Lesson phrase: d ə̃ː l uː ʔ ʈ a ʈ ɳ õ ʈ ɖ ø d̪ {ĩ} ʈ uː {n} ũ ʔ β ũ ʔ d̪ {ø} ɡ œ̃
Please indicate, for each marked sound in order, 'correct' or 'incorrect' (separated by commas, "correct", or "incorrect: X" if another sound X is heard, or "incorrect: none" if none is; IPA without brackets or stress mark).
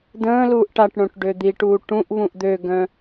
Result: incorrect: i, incorrect: ʈ, correct